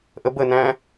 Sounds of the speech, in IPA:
ʔ ə b ə n æ̃

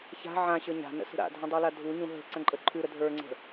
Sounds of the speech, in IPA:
ç a̤ ʕ ã ɕ ə˞ ɲ a̤ n ə̰ s ə̤ ɾ a̰ dʱ ə̃ dˤ y l a dʱ u ɲ ũ ɦ ə̤ ǀ ə̃ ǃʼ ə ǃʰ ʉ ɾ ə dʱ ə˞ ŋ͡ǀ ə̤

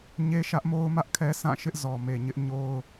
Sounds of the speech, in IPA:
ɲ e˦ ʃ ä˦ ʔ m o˦ ʊ̯ m ä˦ ʔ kʰ ɛ˦ sʰ ã˦˨ ʃ ɪ˦ ʔ z ɔ˨ m e˨ ɲ ɪ˦ ʔ ɲ o˦ ʊ̯

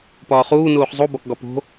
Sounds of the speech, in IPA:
p ɒː χ uː n uː χ zˤ u b ɒ k ɡ ɒ p o̤

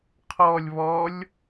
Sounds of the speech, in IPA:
qʰ ɔ lʲ β ɔ lʲ

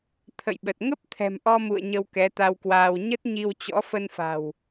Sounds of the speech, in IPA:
t̪ʰ ə̰˧˨ j ɓ ə˨˩ t̚ ŋ ə˦˥ p̚ t̪ʰ ɛ̤˨˩ m ʔ ɔ˧ m ṵ˧˨ ə̯ ɲ ə˧ w k ɛ˨˦ t̪ a˧ w k w aː˧ w ɲ ə˦˥ t̚ ɲ i˧ w t͡ɕ ɔ̰˧˥ f ə˧ n f a̤˨˩ w

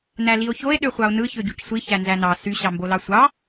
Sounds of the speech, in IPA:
n æ l i o̯ ç o e̯ ɗ ø χʷ ɑ o̯ n ɯ ç ø ɟ u c sʷ i ç æ n z æ n ɑ s y ɕ ɑ m b o l ɑ sʷ ɑ

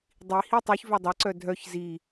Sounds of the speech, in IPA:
dˤ i h i tˤ œ ç v œ dˤ a ǀ œ dʱ œ ç z i

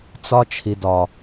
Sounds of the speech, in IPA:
t͡s ɒ˦ t͡ʃʰ i˨ d ɒ˨

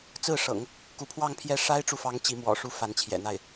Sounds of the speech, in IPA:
t͡s ɹ̩˥˩ ʂ ɤ̰˨˩˦ ŋ | k u˧˥ pʰ w ɑ˥˧ ŋ pʰ j ɛ˥˩ ʂ a˥ ɪ̯ ʈ͡ʂ u˨ f ɑ˧˥ ŋ t͡ɕ i˧˥ m w ɔ̰˨˩ ʂ u˥ f a˧˥ n t͡ɕʰ j ɛ̰˨˩ n̪ a˥˩ ɪ̯

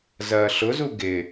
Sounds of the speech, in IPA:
z ɐː ɬ ʊ z u ɡ ɪ

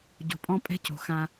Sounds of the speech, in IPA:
ɟ o̤˨ pʼ ɔ̃˦ pʼ ɛ̤˦ c o̤˨ x ã˦

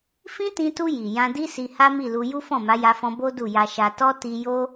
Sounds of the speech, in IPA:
f ĩ˦ t ĩ˧ t u˧ j i˨ j ã˧ d i˦ s i˧ h a˦ m i˦˨ l u˧ j u˦ f ɔ̃˦˨ m a˨˦ j a˧ f ɔ̃˧ b o˦ d u˦˨ j a˧ ʃ a˧ t ɔ˦ t i˧ j o˦

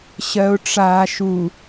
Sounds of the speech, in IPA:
ɕ ɜ ʊ̯ ʈ͡ʂ aː ʃ u

